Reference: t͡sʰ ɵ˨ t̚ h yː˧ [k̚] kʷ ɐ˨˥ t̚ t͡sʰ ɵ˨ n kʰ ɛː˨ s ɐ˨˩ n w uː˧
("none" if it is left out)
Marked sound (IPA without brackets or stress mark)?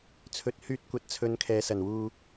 t̚